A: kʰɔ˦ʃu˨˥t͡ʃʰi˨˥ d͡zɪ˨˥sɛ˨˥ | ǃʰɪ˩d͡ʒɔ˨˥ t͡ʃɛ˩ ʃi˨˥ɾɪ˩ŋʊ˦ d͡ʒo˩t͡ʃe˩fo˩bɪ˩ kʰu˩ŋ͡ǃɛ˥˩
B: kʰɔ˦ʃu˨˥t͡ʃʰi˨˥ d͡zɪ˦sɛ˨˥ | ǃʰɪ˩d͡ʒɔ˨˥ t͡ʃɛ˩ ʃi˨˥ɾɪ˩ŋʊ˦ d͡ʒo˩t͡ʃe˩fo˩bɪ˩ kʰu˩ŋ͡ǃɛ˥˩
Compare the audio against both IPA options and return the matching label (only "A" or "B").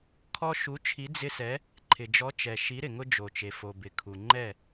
B